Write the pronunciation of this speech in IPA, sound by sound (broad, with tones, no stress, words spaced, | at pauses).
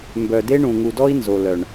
mbœ˨de˦ɳũ˨ ŋu˨dɔ˦i̯ nzo˨ lœ˨ɳ